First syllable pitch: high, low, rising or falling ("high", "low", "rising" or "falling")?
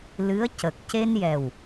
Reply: rising